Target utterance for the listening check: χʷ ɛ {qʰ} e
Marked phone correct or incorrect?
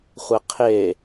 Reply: correct